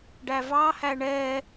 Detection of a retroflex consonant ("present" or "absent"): present